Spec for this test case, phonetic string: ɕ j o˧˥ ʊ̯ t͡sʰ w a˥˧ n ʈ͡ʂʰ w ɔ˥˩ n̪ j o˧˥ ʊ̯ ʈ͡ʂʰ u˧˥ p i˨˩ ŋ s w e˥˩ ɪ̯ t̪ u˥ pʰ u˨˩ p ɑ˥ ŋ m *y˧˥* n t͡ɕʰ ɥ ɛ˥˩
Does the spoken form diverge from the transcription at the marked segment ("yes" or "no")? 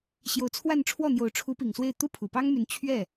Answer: no